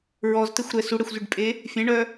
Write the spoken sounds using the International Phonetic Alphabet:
ɹɔztɛxʷɾɛ suɽɛxʷzyɖpʼe | fʲɛ̃ɳœ

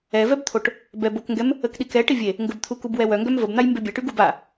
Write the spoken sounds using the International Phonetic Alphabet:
ɛvɛbt̪ʰoʈ | bɛbokŋɡɛm | əkɗikɛ ʈivʲe | ŋɡəbt̪ʰu kubwɛwœŋɡœm vəbn̪aj mbebʲɛʈy ɡuba

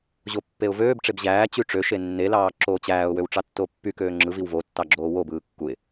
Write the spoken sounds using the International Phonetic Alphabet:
ʑopːeʊ̯vøːbʈ͡ʂeb ʑæːt͡ɕy ʈ͡ʂøʃe nːelɑː ǁoːt͡ɕæːʊ̯wøw ʈ͡ʂɑtːopːykøː ŋ͡ǁɯ viwvotːɑ ɡ͡ǁoːwobɯː kːuɪ̯

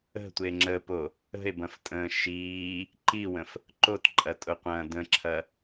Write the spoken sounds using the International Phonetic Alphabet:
ə̤tʷe ŋ͡ǁəpo | ə̤e̯bɐ̃ftʼə̃ː ʃiː | ǃiwə̃f | ǃotǃʼɐtʼʊqʷɐ̃ː də̃ǁʰɐ

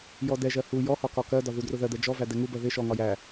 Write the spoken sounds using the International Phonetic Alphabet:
jɔdɛʒɜ hu jɔhɒ kɒkɜdɒ ðudrʊðɜd̪ɛ d͡ʒɔvæ dɛŋubɜ ðɪ ʃɔŋɒ jæ

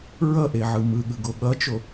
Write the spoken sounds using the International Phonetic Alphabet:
ɹʌʔeʕɯ mɯɠɯɡo ɠʌt͡ʃo

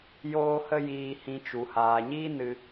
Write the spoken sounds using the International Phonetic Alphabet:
joː˧hə˧ jiː˧hĩ˧t͡ʃu˨ haː˨ɲiː˦nɨ˧

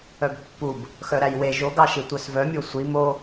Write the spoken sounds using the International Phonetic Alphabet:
œbpːub | xœɾæjwe ʒo ɡɑʃitʷœsvœ mʲosʷi mo

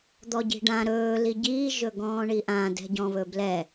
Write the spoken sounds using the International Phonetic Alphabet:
d̪ɔɟi̤ɖã ɾɵː liɟiː ʒɵɡɔ̃ːɳiʔã dɛ̤ɟɔ̃βɵblɛ

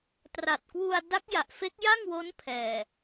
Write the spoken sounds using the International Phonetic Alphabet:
tra˨˩t̚kwu˧a̯ da˦˥k̚ ja˨˩ʔfe˦˥k̚ja˥˩ŋwo˦˥n pʰɛː˨˩

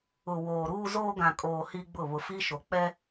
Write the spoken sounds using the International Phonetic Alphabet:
ʊ˨ woː˨ɾuː˦zoː˦ ɡã˨kʼoː˨ hi˦ɡ͡bʊ˦˨ βʊ˨fi˦ʃo˨ k͡pɛ˦

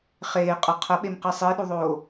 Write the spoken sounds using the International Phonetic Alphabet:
χeːqʼə˞ qʰɐɓemqi sˤiɗuðˤoː

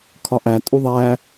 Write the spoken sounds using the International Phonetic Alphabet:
kʰɒʔæ tʼuðˤæ

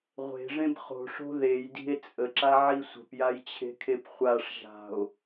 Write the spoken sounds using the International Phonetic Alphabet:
ʁʷe̤ʐẽb χo̤ʂo̤ ðejdi̤e̯ t͡sʼəǁaʕi sʷə̤pjajt͡ɕʰe̤kʰep χʷaʂ ʒa̤o̯

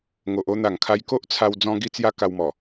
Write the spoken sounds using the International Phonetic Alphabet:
ŋo˨ʔo˦ n̪a˨˩ŋkʰa˧jko˦ʔt͡sʰa˧w d͡zɔ̃˧ɡi˧t͡sja˧ ka˧wmɔ˨˩

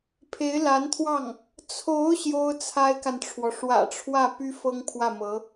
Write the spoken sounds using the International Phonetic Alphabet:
pʰe˧˥ɪ̯la˧˥nt̪ʰwɑ˥˩ŋ | t͡sʰo˧˥ʊ̯ ɕjo˥ʊ̯t͡sʰa˥ɪ̯ka˨nʈ͡ʂʰwɔ˩ ʂwä̰˨˩ʈ͡ʂʰwä˥˩ py˥fɤ˥ŋpʰwä˥˩mɤ˧˥

